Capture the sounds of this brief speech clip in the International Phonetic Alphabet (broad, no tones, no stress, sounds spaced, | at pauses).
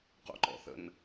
q o̰ ǃ ɔ̰ θ ə̰ n